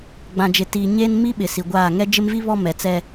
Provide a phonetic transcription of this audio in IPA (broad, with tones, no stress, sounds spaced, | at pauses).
ɡ͡b ã˨ d͡ʒ ɪ˨ t iː˨ ɲ e˦ n m i˦ ɓ ɪ˨ s i˨ ɡʷ aː˦˨ ŋ ɛ˦ d͡ʒ ɪ˦ m v i˦ β ɔ˦ m ɛ˨ t͡s ɛ˦